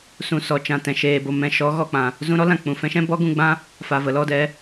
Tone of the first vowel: low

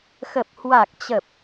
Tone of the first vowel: low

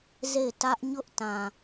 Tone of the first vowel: falling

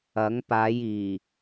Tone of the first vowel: rising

